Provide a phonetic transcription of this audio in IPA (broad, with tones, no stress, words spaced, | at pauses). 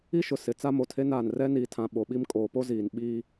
i˦ʃʊ˨ sɪ˨ t͡sa˦mo˨tʰe˦naː˨n rɛ˦niː˨tʰã˨ ɓo˨ɓi˦m kʼoː˨po˦ziː˨n ɓiː˦